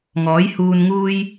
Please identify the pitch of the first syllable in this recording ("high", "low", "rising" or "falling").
rising